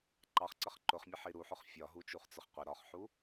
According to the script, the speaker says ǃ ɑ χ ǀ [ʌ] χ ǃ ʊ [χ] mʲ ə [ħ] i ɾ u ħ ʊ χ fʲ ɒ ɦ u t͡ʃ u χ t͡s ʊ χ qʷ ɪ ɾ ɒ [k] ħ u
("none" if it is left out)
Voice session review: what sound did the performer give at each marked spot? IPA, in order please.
ʌ, χ, ħ, χ

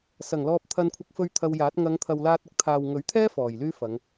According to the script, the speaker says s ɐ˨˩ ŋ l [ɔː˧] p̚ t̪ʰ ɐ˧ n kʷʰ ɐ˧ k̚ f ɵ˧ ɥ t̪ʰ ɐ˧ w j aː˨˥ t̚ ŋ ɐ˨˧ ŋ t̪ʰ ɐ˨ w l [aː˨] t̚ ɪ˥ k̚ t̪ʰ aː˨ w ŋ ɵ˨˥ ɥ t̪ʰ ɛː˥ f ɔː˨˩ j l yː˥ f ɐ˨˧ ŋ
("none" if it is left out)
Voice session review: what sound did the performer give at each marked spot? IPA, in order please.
ɔː˨, aː˧

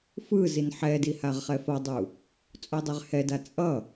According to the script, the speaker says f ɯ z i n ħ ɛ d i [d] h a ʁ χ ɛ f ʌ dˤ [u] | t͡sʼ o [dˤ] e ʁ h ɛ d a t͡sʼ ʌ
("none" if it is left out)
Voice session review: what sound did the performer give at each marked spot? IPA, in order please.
none, u, dˤ

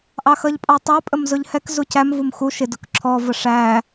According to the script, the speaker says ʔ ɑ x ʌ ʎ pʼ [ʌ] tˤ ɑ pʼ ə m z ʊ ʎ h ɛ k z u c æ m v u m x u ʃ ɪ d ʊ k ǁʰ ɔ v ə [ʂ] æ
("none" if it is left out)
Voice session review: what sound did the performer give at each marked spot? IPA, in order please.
ɑ, ʂ

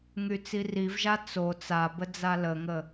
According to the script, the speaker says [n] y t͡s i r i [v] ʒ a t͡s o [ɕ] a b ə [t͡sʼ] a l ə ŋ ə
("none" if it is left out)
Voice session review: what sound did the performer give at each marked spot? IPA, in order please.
ŋ, v, t͡s, d͡z

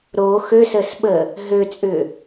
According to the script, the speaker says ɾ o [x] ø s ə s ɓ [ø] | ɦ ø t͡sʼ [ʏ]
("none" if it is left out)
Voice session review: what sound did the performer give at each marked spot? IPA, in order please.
x, ə, ʏ

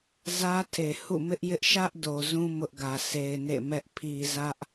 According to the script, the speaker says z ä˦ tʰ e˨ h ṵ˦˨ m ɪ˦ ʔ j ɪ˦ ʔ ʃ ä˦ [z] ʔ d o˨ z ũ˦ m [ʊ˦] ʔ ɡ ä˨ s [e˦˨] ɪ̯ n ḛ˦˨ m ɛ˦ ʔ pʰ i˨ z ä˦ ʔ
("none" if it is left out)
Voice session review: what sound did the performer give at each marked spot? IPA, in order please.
none, ʊ˦, e˨

